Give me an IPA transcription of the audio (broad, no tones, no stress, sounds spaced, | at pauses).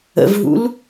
ə̰ v ɦ ṵ l